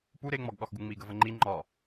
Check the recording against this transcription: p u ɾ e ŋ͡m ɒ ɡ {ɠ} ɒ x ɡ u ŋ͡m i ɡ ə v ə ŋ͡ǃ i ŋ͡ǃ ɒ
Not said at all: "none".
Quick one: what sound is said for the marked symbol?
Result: ɠ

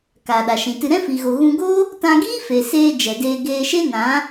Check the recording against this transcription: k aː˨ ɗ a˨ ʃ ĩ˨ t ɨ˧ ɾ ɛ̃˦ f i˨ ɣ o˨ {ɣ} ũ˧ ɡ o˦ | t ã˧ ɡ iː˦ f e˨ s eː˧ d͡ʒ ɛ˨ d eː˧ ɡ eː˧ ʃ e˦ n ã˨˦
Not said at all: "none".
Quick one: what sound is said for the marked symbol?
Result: ɣ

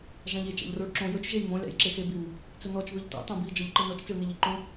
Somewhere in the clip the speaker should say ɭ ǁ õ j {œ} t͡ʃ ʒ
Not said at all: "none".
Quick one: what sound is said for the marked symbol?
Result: ɵ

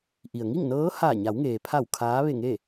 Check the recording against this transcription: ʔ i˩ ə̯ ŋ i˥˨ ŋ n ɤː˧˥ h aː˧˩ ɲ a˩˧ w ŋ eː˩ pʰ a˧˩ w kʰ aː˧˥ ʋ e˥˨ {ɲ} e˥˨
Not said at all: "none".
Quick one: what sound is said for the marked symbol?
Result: ŋ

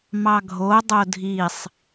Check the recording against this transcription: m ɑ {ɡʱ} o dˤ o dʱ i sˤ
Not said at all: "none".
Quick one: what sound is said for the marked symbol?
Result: ɡʱ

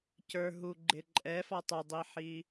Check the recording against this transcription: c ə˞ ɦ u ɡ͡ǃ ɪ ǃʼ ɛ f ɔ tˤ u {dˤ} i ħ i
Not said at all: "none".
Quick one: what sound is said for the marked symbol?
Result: dˤ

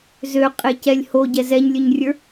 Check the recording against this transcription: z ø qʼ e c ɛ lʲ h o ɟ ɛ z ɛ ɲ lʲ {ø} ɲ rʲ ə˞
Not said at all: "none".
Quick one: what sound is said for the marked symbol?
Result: ø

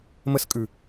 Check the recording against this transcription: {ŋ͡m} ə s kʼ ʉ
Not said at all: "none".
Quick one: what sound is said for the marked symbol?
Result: m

